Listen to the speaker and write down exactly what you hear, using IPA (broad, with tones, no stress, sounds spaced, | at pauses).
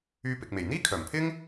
yː˧ p ɪ˨ k̚ m e˨˩ j n̪ iː˥ kʰ œː˨˩ m pʰ ɪ˥ ŋ